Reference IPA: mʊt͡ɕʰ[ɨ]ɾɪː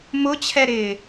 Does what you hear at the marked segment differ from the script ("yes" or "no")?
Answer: yes